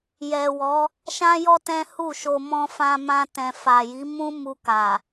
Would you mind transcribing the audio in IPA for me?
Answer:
j ɛ˨ w ɔ˨˦ | ʃ ã˦ j ɔ˦ t ɛ̃˦ h u˦˨ ʃ o˧ m ɔ̃˧ f ã˧ m ã˧ t ɛ̃˨ f a˨ j i˨˦ m ũ˦ m u˧ k a˨

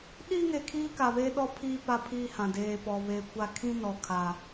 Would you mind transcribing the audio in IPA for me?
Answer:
ɗ iː˦ ŋ e˨ kʰ iː˦ k a˨ β eː˦ ɗ ɔ˦ pʰ iː˦ p a˦ pʰ iː˦ h ã˨ d eː˨ p ɔ˨ β e˨ kʷ a˦ kʰ ĩ˦ n ɔ˨ kʰ a˨

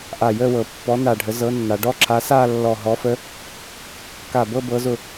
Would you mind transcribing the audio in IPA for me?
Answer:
ʔ a˧˩ j ə˥˧ w ɤ˩˧ pː ɔ˨˥ n a˧˩ ɖʱ ə˨˥ z ɤ˨˥ nː a˩˧ ɖ ɔ˥˧ ǁʰ a˨˥ s a˥˧ lː ɔ˧˩ ɦ ɔ˨˥ f ə˨˥ | k a˧˩ b ɤ˥˧ b ɤ˨˥ z ʊ˧˩

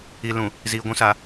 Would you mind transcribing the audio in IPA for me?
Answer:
i˨ l ũ˨ | z iː˨ ɡʷ ũ˦ s a˨

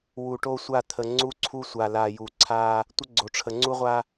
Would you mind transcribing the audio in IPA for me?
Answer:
w u˨ ʈ o˦ sʷ a˦˨ t̪ʰ ə˨ ŋ͡ǀ u˦ ǀʰ u˦ sʷ a˨ l a˨ j u˨ ǀʰ a˦ | tʷ ə˦ ɡ͡ǀ o˨ ʈ͡ʂʰ ə˨ ŋ͡ǀ u˦ ʁʷ a˦

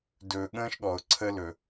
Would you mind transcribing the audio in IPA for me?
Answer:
d ɵː˨ ɠ ə̃ː˦ ʃ ɠ ɔ˨ ʊ̯ ǀʰ ə˦ l ɵ˨

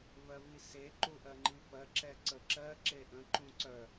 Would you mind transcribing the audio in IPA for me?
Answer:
v ɜ v i s e ǃ u ʔ ɜ ŋ͡ǃ i f ɜ ǁ ɛ ǀ ə ǁ ɜ ǁ e ʔ ə̃ ǃ ũ ǀ œ

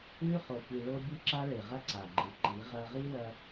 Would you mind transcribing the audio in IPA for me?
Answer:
ʉ˦ χ o˧ p i˧ ɭ o˦ bʲ ʉ˦ ǁ a˦ ɭ e˨ ʁ ɐ˦ ǀ a˨ ɡ͡ǃ ɨ˨ ǃ i˨˦ ʁ ɐ˦ ʁ i˦ l ɐ˧

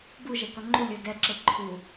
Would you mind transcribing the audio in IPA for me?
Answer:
b u ʒ ɛ k ʌ ŋ͡ǃ u lʲ o d ɛ ǁ e ǃʰ u

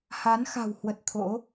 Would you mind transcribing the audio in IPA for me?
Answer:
h a˨˦ n x a̤˨˩ w h w ə˨˩ t̚ t̪ʰ o̰˧˥

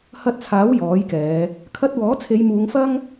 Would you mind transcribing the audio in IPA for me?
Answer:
h ɐ˧ t̚ t͡sʰ aː˨˥ w j ɔː˨˥ j k ɛː˨˧ | kʰ ɐ˧ t̚ w ɔː˨˥ t͡sʰ e˨˧ j m uː˨˧ ŋ f ɐ˥ ŋ

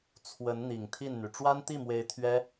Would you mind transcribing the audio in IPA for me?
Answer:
t͡sʰ w ə˧˥ n n̪ i˨˩ ŋ t̪ʰ i˥˩ n n̪ y˩ ʈ͡ʂ w a˥ n t̪ i˥˩ m w e˧˥ ɪ̯ t̪ʰ ɥ ɛ˥

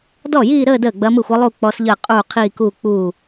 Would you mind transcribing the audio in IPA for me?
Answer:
d ɔ˥˩ j iː˥˧ ɾ əː˥˧ d əː˥˩ ɡ͡b ɐ˧˥ m ɯ˥˩ xʷ ɤ˧˥ lˠ u˥˧ k͡p ɔ˧˥ s ʎ əː˥˩ qʼ uː˥˩ qʰ iː˥˧ k uː˥˧ k͡p uː˥˩

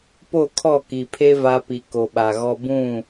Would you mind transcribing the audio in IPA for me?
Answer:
p o˦˨ kʰ ɔ˦˨ k i˨ pʰ e˦ v a˦ p i˨ k o˨ ɓ a˨ ɣ ɔ˦ b ũ˦˨

